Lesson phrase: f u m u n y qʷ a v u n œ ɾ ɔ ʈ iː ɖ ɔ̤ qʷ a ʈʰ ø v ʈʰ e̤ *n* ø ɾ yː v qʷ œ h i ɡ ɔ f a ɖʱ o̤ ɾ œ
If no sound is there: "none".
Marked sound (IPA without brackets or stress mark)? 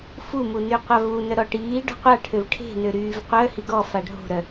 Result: n